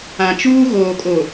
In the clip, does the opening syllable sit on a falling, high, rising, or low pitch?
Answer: low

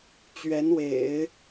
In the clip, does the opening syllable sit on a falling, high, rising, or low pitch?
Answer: rising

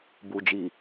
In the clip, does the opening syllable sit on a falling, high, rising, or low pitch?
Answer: low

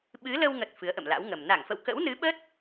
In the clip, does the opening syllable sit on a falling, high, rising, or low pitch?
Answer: rising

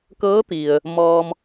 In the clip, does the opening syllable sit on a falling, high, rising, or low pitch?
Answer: rising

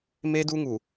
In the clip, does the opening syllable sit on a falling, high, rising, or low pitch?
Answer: high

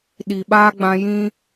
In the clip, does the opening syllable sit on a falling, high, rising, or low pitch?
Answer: low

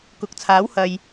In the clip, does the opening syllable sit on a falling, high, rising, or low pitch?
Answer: rising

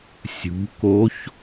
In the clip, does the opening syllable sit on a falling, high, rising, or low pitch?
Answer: rising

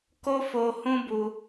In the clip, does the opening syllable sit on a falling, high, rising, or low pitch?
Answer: high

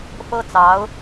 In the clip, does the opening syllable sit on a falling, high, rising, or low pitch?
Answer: high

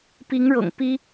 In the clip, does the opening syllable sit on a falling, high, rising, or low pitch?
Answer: rising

